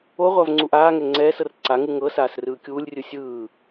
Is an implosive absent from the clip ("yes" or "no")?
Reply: yes